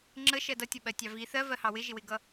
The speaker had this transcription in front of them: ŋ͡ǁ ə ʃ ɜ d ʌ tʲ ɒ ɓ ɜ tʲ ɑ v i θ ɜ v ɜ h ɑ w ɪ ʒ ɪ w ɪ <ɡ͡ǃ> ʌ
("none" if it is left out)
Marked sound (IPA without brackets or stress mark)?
ɡ